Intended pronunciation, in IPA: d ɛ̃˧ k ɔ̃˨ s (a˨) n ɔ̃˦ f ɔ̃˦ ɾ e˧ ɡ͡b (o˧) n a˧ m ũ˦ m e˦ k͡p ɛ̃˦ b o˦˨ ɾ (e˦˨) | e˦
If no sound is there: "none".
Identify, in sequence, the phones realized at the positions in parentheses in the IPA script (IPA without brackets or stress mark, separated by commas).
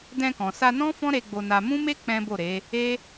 a˧, o˧, e˨˦